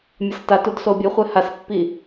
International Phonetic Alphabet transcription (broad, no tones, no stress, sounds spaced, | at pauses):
mʲ ʌ s t a t u d s o bʲ o χʷ ɛ h a s pː i